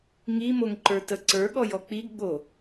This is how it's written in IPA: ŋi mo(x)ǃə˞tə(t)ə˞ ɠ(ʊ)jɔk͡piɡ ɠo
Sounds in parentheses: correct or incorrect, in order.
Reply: incorrect, incorrect, incorrect

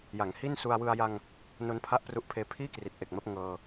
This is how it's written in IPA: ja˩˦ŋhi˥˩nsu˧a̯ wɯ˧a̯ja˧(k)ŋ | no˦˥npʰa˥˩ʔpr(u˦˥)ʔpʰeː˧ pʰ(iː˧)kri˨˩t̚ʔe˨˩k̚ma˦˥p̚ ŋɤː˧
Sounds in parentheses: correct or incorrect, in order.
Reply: incorrect, correct, incorrect

